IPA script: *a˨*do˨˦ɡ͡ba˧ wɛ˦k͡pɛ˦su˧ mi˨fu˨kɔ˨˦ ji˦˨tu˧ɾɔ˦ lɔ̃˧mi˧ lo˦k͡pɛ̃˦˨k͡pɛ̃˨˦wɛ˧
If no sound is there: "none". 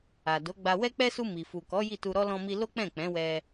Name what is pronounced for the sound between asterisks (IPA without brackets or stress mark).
a˨